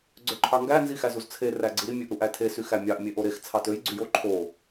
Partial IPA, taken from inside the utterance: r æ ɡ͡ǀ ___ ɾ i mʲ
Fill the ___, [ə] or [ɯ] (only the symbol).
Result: ɯ